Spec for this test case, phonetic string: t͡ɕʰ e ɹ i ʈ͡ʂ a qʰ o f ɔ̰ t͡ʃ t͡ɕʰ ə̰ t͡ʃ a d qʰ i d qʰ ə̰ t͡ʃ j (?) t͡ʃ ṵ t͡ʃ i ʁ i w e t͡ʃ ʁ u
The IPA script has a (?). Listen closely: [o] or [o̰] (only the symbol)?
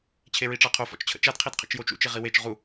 o